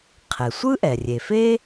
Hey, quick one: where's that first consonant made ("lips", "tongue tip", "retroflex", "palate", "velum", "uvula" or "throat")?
uvula